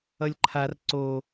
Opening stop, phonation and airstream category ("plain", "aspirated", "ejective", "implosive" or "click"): click